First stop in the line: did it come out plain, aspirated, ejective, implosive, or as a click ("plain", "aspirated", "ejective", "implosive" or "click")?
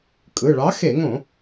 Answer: ejective